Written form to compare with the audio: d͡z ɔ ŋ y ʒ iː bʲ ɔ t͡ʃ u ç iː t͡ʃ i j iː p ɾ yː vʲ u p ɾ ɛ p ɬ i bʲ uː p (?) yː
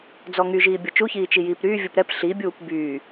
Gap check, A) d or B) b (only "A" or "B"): B